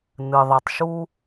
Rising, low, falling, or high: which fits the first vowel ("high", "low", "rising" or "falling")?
low